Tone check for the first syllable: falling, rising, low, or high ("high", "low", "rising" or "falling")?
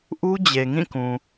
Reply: high